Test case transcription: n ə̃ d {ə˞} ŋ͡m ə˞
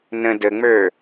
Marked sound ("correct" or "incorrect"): incorrect